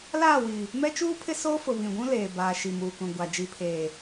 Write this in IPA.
l aː˦˨ w i˨ | m ɛ˦ t͡ʃ uː˦ pʰ ɪ˦ s oː˦ f ʊ˨ β ĩ˨ ɡʷ ũ˦ l eː˨ b aː˨ ʃ i˨ m uː˨ k ũ˨ ɡʷ a˨ d͡ʒ i˨ pʰ eː˨

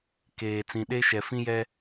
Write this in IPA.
k eː˨ t͡s ĩ˨ ɗ e˦ ʃ ɛ˨ f ĩ˦ j ɛ˦

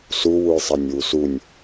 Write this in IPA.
s u w u j sˤ ɛ nʲ w u s u nʲ

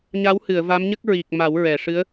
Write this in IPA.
ɲ a˧˥ w h ɨ˨˩˨ ə̯ v a˧˥ m ɲ ə˦˥ k̚ ɹ i˨˩ k̚ m a˨˩˦ w ɹ ɛ˨˩˨ ʂ ɨ˧˥ ə̯

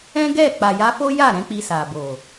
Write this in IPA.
ɛ̃˦ ɡ ɛ˦˨ k͡p a˨ j a˧ f o˦ j a˦˨ ɾ ɛ̃˧ k͡p i˧ s a˨ b o˨

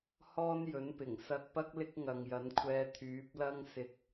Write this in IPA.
h ɔː˥ n j ɵ˨˥ n p ɪ˨˩ ŋ s ɐ˧ k̚ p ɐ˥ k̚ l ɪ˥ k̚ ŋ ɐ˨ ŋ j ɐ˨˥ n kʷʰ ɛː˧ t̪ʰ yː˨˥ p̚ l ɐ˥ ŋ s ɪ˧ k̚

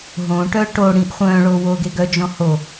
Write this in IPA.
ɦ õ ʈ œ ʈ o ɽ ĩː ʔ χʷ œ̃ː ɭ o w oː ɡ e ɡ œ d͡ʒ ɔ̃ h o

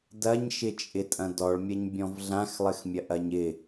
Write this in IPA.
d ɐ ɲ ʃ ɪ t͡ʃʼ ɪ tʼ ɐ̃ d ɔ ɭ mʲ ɐ ɲ bʲ ɔ̃ v ɮ ã x lˠ ɘ x mʲ ɐ ʔ ɐ ɲ ɪ

